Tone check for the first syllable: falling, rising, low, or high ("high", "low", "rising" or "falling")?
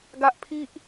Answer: high